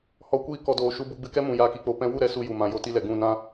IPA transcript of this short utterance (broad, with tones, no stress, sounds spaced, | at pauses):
h ɔ˨˦ kʷ iː˧ k ɔ˨ d oː˨ ʃ u˧ b u˧ ɡ͡b ɨ˧ k ɛ˦ m ũ˨ j aː˧ k i˧ k͡p o˧ p ɛ̃˧ w u˦˨ ɾ ɛ˦ s u˧ j u˨ m ã˨ j o˧ t i˧ l ɛ˨ ɡ ũ˦˨ n ã˦